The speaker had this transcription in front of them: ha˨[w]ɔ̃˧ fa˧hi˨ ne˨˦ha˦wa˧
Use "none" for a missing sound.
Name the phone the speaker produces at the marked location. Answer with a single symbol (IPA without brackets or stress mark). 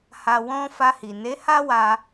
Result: w